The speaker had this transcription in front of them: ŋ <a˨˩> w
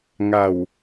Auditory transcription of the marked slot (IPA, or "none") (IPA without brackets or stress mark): a˨˩